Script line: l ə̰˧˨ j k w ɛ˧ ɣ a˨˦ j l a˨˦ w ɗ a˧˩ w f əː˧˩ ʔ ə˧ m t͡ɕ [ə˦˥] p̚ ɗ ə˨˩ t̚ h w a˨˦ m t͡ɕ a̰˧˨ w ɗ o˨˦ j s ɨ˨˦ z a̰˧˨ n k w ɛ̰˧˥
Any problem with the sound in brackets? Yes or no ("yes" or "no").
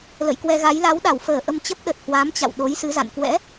no